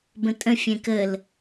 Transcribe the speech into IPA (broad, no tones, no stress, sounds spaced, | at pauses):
b ə̃ tʼ ə̃ fʲ ɛ̃ k ə l